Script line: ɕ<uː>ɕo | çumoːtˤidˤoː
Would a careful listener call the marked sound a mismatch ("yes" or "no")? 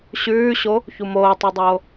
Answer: yes